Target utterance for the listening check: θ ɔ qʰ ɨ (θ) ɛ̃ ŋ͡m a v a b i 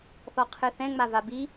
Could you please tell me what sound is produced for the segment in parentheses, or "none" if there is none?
θ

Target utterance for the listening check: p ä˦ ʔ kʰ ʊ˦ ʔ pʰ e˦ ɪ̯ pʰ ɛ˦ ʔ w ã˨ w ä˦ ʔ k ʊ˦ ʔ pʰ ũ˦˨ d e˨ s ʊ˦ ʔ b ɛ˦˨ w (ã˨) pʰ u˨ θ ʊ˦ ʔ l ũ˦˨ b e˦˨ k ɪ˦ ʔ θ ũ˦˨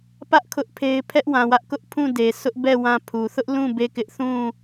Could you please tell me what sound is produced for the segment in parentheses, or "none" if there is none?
ã˦˨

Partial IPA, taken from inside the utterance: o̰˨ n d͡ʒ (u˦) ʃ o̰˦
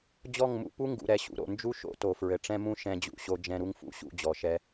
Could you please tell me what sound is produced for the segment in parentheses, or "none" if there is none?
u˦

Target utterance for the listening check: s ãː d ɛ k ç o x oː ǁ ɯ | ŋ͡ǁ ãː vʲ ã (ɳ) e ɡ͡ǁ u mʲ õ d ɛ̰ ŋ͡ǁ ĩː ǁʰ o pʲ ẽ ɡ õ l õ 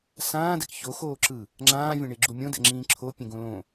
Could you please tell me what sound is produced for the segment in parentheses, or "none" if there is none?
ɳ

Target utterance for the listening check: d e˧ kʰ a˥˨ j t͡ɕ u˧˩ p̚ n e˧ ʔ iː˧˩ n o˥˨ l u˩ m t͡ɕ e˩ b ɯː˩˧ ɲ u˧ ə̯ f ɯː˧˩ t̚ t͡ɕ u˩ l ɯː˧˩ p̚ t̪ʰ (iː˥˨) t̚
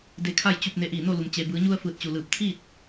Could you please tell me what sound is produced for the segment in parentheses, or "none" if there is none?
iː˥˨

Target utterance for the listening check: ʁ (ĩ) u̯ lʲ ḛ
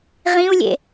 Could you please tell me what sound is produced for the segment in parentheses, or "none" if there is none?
ĩ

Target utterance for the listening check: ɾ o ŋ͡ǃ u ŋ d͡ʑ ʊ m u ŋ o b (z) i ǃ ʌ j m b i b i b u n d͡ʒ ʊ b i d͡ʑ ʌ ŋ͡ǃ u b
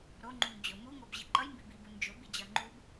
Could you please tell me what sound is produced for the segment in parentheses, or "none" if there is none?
ʑ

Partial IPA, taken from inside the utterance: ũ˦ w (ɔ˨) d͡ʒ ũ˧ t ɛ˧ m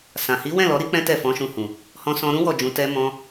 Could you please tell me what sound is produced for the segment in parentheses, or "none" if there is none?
ɔ˦˨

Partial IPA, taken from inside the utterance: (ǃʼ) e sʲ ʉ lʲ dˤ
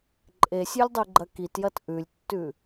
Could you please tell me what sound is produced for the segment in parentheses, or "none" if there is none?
ǃʼ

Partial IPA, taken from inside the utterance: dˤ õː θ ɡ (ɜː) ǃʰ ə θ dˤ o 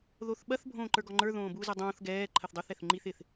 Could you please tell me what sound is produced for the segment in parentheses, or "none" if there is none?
ɛː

